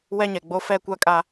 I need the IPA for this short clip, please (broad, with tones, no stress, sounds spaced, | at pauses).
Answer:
w ɛ˦ ɲ ɛ˨ ɡ͡b o˦ f ɛ˦ kʷ a˦ kʼ a˦